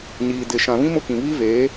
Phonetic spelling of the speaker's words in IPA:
ɲ iː˨ d ɪ˨ ʃ ã˨ β ĩ˦ m ʊ˦˨ k ĩ˨ β i˦ v eː˨˦

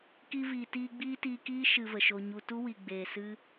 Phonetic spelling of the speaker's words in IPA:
k i˧ v iː˨ t iː˧ ɡ͡b iː˦ t iː˧ k iː˦ ʃ ɨ˧ v ə˨ ʃ o˧ ɲ u˧ t u˦ w i˨ ɡ͡b eː˨ s ɨ˦

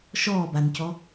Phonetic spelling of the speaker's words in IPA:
ʃ ɔː b a n c ɔ

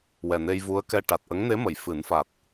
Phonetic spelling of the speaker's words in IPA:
w ɛ˨˩ n e˧ j v u˧˥ ə̯ k ɛ˧ ʈ a˨˩ t̚ ʔ ə˧˥ ŋ n e˧˥ m ə˨˩˨ j f ɨ˨˩˦ n f a˨˩ t̚

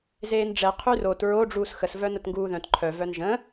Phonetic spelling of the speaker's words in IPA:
z eː n ɖ͡ʐ ɛ qʰ y r o t ɹ o ɖ͡ʐ uː s x ə s v œ n ə t ŋ ɡ uː ð œ̃ t ǃʰ œ v œ n ʒ ə̃

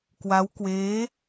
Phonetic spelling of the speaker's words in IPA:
k w a˦˥ w k w eː˦˥

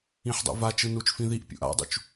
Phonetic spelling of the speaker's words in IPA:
ĩ ħ dˤ ṵ v a t͡ʃ ɯ n u t͡ʃ f ĩ ð i ʔ pʲ ṵ ʔ a̰ dˤ ṵ t͡ʃ

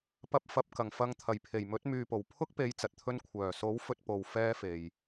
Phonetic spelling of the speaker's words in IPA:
p ɐ˧ p̚ f ɐ˨ p̚ k ɐ˨˩ ŋ f ɐ˨˧ ŋ t̪ʰ ɐ˨˩ j pʰ e˨˩ j m ɵ˨˥ t̚ m yː˧ p o˨ w pʰ ʊ˥ k̚ p e˨˥ j t͡s ɐ˨ t̚ t̪ʰ ɵ˥ n kʷʰ œː˨˩ s o˨˥ w f ɵ˥ t̚ p o˧ w f ɛː˥ f e˨ j

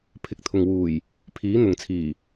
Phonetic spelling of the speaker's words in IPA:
pʰ ɪ˨ k̚ t̪ʰ ʊ˨ ŋ w uː˨˩ j | pʰ iː˨˥ n̪ ʊ˨ ŋ t͡sʰ iː˨˩

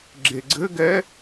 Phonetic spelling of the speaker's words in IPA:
ɡ͡ǁ e ɡ͡ǀ ɘ ɡ ɛ

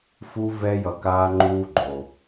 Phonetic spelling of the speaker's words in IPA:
f u˦ v ɛ˦ j ʌ˧ k aː˦ ŋ͡ǃ uː˦ ɡ͡ǃ o˨

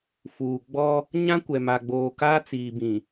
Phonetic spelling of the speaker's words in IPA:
f uː˨ ɡ͡b ɔ˦ | ɲ ã˦ kʷ ɛ˨ m a˨ ɡ͡b oː˨ k aː˦ t͡s iː˨ b ĩ˨

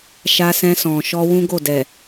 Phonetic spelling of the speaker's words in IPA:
ʃ a˧ s ɛ̃˧ s ɔ̃˨ ʃ ɔ˧ w ũ˦ ɡ o˦˨ d ɛ˨

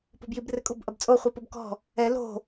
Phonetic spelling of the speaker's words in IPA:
p ɔ̤ b j i b r ɘ kʼ o̤ b ʔ ɐ b t͡sʼ o χʷ ɨ p o b k ɔ̤ | ɛ l o̤

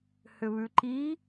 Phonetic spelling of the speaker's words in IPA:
h ʏ β ʉ ǃ i

